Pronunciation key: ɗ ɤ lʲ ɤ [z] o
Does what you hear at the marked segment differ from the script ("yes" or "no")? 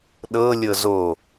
no